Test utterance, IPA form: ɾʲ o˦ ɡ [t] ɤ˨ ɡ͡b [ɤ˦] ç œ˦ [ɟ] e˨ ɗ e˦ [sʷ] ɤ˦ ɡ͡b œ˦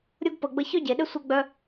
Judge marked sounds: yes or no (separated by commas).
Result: no, yes, yes, yes